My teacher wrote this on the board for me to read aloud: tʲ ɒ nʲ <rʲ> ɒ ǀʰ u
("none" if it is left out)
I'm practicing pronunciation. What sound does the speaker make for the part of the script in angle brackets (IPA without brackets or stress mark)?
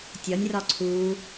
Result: r